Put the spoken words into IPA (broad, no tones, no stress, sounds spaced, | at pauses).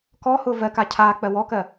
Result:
k ɔ h ʊː v ɜ k a cʰ aː k͡p ɜ w ɔ k ɜ